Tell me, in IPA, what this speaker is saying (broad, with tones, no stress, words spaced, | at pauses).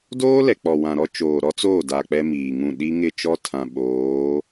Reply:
doː˦lɛ˨ k͡pɔ˨wã˨ɾɔ˦ t͡ʃoː˨ɾɔ˦ t͡soː˦˨da˨ k͡pɛ˦miː˨ŋũ˦˨ ɗi˦ŋɪ˦˨t͡ʃɔ˦ tʰã˨ɓoː˨˦